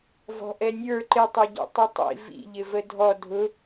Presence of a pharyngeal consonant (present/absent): absent